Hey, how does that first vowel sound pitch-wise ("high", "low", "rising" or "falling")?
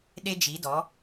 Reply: high